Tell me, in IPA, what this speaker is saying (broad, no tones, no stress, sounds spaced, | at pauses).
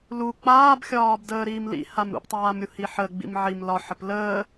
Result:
l u k͡p aː b xʲ ɒː b d əː ɾ iː m l ḭ h a m ɾ ṵ p tˤ aː m ɾʲ u h i ħ ə ɡ͡b ḭ m ʕ i m l ɒ ħ ə p l əː